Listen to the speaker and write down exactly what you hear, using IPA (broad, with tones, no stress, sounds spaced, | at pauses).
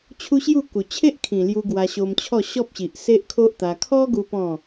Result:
t͡ɕʰ u˦ ɕ j u˥˧ k u˨˩ t͡ɕʰ e˦ ʔ kʰ ĩ˨˩ l j u˧ ɡ w a˧ ɕ o˧ m t͡ɕʰ ɔ˥˧ ɕ ɔ˦ p̚ ɕ i˨ ʔ s e˦ ʔ kʰ o˦ ʔ t̪ a˧ kʰ ɔ˦ ɡ u˧ p ɔ̃˥˧